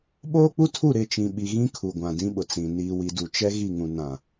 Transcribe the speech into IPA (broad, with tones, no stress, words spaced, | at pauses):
ɓoː˦k͡pu˦tʰu˦˨ ɾɪ˦˨t͡ʃĩ˨ ɓi˨ɣĩ˦ kʰu˨ɡʷã˨dĩ˦ɓʊ˨ t͡sĩ˨ niː˨wi˨ du˨t͡ʃɛ˦ɣi˦˨ŋũ˨ nã˨